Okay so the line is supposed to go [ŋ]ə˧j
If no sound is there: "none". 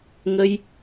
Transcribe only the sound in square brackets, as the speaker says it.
ŋ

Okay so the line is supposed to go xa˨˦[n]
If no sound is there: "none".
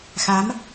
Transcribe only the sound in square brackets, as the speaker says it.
m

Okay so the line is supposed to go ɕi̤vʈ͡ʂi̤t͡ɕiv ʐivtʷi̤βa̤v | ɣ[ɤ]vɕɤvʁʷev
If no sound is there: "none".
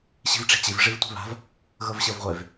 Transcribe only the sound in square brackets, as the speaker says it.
ɤ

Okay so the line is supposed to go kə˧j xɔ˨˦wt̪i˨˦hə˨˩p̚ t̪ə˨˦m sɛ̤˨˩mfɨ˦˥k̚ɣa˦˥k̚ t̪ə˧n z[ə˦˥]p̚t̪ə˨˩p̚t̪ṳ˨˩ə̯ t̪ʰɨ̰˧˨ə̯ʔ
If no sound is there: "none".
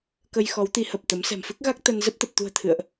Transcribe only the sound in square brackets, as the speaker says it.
ə˦˥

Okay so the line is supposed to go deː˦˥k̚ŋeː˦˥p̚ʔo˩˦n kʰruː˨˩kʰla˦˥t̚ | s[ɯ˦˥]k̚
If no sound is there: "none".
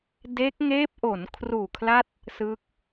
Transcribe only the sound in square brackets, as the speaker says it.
ɯ˦˥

